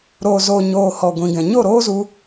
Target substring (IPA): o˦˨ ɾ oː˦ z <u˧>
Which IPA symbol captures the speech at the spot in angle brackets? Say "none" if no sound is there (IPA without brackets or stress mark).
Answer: u˧